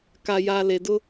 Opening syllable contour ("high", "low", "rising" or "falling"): low